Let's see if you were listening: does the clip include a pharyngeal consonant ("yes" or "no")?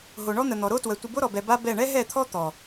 no